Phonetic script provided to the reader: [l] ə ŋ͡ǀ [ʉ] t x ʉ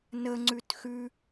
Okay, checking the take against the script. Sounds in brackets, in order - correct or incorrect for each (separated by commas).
incorrect, correct